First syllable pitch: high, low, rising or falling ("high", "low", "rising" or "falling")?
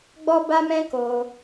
high